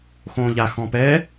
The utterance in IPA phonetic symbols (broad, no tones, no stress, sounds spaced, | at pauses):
x õː ʎ a x ɔ̃ p ɛ